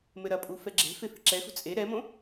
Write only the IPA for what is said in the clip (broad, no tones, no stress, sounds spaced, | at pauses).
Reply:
m ɘ ɾ ɐ pʼ u f ɛ ɡ͡ǁ e̤ f e f i̤ ǁ ɛ x ṳ t͡sʼ e ɾ ɛ m õ